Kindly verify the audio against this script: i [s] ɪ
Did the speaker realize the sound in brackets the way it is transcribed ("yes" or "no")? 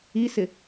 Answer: yes